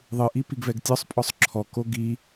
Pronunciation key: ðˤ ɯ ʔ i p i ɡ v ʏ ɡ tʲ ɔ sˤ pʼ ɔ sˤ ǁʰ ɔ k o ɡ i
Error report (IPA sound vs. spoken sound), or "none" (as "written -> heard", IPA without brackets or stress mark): ʏ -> ɛ